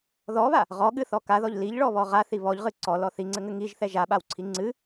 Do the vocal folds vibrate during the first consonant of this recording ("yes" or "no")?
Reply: yes